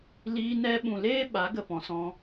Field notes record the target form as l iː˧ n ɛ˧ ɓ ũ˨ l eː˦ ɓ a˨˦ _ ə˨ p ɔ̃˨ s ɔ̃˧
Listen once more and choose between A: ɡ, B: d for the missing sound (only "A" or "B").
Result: A